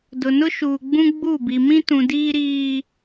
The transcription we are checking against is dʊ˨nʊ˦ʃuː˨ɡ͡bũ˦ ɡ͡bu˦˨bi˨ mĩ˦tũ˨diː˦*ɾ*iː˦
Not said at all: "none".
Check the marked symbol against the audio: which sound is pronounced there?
ɾ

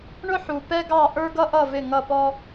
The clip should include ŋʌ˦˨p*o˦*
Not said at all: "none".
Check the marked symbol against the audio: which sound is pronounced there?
ɔ˦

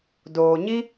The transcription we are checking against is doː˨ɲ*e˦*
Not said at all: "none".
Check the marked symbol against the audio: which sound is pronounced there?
i˦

